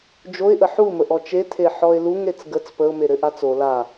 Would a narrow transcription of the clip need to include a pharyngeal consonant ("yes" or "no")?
yes